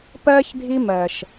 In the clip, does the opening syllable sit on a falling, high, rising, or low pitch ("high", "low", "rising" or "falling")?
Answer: high